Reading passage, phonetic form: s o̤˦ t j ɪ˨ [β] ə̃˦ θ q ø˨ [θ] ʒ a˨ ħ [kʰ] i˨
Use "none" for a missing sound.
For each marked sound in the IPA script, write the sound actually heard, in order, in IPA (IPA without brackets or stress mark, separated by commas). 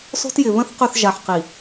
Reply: β, θ, q